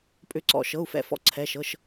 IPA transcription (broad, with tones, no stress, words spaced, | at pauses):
pʼʏ˧˩ǀɔ̰˧˩ ʃɤ˩˧˩u̯fɛ̰˧˩fɔ̰˧˩ ǀʰɛ˩˧˩ʃɤ˩˧˩ʃ